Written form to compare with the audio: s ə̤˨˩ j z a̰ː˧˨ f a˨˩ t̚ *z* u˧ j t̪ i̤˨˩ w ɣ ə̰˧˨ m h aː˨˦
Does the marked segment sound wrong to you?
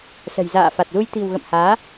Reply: no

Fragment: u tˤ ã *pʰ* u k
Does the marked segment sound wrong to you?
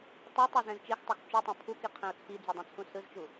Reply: no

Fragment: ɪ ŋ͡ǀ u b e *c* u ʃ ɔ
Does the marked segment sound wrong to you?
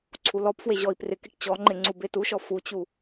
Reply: yes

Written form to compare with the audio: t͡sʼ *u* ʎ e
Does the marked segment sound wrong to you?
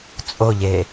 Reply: yes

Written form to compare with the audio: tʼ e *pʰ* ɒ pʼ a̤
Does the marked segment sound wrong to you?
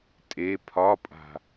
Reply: no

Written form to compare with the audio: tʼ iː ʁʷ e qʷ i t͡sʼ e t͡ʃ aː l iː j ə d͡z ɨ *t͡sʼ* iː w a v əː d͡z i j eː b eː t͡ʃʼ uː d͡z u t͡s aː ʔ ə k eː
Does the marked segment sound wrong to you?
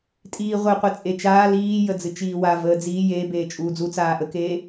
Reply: yes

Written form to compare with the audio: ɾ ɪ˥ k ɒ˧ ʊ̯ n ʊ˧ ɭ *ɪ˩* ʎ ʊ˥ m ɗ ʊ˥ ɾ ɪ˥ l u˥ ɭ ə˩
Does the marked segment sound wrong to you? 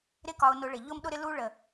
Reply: no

